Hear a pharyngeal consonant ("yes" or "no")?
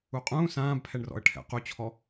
no